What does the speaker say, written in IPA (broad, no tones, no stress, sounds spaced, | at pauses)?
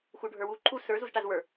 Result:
x u ɖʱ ə˞ w u ǃʰ u s ə˞ z u z ʈ a z w ə˞